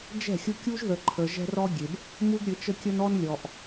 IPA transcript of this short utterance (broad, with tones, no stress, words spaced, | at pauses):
d͡ʒɛ̤˦˨xʲʊ˦ kʲu˦ʒðə˨ǃʰə˨ ʒɛ̤˦rɔ˦ɡʲe˨b | mu˦ɡɾʲɘ˨˦t͡ʃə˦kʲə˦n ɔ˦nlʲɔ˨ʔ